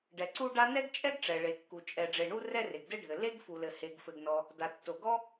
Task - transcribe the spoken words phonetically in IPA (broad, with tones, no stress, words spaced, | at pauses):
ɖɛ˩ǀu˥ɖa˥ nɛ˥ɡt͡ʃʼɛ˥ɡ ʈ͡ʂɛ˩ɭe˩kːu˩ t͡ʃʼɛ˩ɖ͡ʐe˩ɳu˥ rɛ˥re˩ɡdɘ˥ɖʱɘ˩ le˥ɡfu˩lɘ˩ he˩ɡfɘ˩ɡnɔ˩ | da˩tːo˩ɡɔ˥